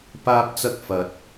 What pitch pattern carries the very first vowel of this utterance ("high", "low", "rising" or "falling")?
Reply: high